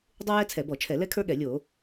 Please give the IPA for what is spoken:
dˤ u˥ j ɛ˥ t͡sʰ ɛ˧˩˧ b ɔ˧˩˧ t͡ʃʰ ɛ˧˩˧ l ɛ˥ kʰ ə˞˥ ɠ ɛ˧˩˧ lʲ o˧˩˧

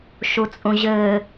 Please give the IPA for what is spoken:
ʃ u t͡sʼ ũ ʑ ɘː

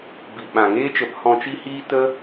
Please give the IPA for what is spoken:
b i˨ ɓ ã˨ ŋ eː˦ t͡ʃ ə˨˦ p h ɔ̃˧ t͡ʃ i˦ h iː˦ t ə˦

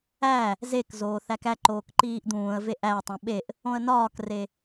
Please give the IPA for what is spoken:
æ | z e k z oː θ æ k æ ǃ oː k ǃ iː ʔ d̪ ũː ə̯ v e ʔ æ ə̯ tˤ ũ ɓ e ʔ | õ ə̯ n ɒː k r e

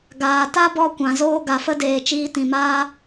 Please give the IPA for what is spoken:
ɡ aː˨ t a˦ b ɔ˧ kʷ ã˨ z oː˦ ɡ a˨ f ə˦ d eː˨ t͡ʃ iː˧ t ĩ˨ m aː˦

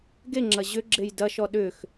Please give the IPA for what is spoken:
ɡ e ŋ͡ǁ ɐ ʑ ʏ ɡ͡ǁ e j d ɐ ʃ ɔ ɗ ʏ x

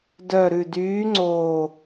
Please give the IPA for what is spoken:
d œ˨˩ ɾ ʉ˨˩ d yː˨˦ ŋ͡ǀ oː˨˩

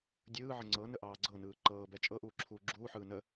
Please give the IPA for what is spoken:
dʲ ɯː ʕ ə ŋ͡ǀ ɤ n ə ʔ ɑː ɡ͡ǀ ɤ n ɯː ǃ ɤː b ɛ t͡ʃʼ ɤ ʔ uː ǁʰ uː ɡ͡ǁ uː ħ ɯː n ə

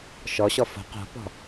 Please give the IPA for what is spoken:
ʃ ɔ ɕ ɔ f o̤ q o̤ p ɔ̤

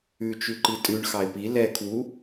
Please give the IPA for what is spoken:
ʉ t͡ʃ ʉ ǃ i tʼ ʉ ɳ x ɑ ɪ̯ p i l ɛ kʰ w u

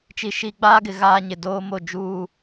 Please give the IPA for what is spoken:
t͡ʃ i˨ ʃ i˨ ɡ͡b aː˦ ɡ ɪ˨ ɣ aː˦ ɲ ɪ˨ d oː˦ m o˦˨ d͡ʒ uː˦˨

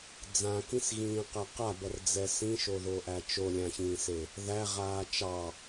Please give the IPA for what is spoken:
d͡z ã k ĩ s ɣ ĩː q æ q a b ʌ r d͡z ɛ s ĩ ʃ o ð o ʔ æ t͡ʃ o lʲ ã ç ĩː s e | ð æ ʁ aː t͡ʃ ɑ

